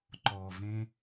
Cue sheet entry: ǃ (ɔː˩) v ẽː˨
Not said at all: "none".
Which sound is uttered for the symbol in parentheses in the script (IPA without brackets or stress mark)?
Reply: ɔː˩